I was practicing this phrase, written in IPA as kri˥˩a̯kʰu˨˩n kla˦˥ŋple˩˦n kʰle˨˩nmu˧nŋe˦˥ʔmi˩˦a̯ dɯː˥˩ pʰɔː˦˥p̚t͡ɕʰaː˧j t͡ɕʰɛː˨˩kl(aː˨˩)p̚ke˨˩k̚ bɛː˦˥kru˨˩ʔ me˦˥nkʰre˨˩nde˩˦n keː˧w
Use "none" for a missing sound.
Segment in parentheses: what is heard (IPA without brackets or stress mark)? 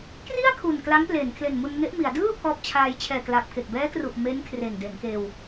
aː˨˩